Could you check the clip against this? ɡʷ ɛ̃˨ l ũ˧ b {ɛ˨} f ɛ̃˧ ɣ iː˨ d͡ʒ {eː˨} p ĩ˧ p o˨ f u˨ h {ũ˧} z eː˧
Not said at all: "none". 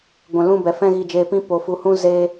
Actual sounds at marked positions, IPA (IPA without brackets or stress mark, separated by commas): ɛ˨, eː˨, ũ˧